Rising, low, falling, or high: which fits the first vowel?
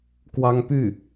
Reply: high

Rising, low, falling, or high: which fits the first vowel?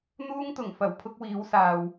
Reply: high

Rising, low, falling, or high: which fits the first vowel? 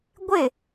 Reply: falling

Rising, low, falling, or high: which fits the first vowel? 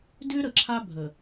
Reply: high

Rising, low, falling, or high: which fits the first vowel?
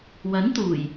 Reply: rising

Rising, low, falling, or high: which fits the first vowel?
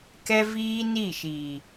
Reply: high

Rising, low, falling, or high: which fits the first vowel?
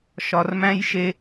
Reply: low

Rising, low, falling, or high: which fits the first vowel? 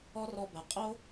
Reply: high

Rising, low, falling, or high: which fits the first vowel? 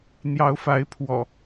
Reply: rising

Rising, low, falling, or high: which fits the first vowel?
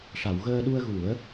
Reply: low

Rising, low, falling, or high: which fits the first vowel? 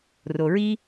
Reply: low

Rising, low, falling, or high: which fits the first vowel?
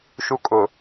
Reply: high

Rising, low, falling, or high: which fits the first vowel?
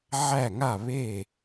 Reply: falling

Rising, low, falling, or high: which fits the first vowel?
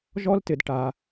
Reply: high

